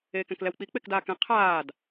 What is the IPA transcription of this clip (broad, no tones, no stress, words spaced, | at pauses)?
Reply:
eːkɛ̃klɛwk͡pi k͡pekdaːkɛ̃ qʰaːd